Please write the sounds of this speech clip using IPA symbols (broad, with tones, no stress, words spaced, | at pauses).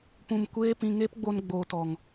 pũ˧m kʷeː˦ pĩ˧ŋeː˦pɡ͡bo˧n ɡ͡boː˨tɔ˨ŋ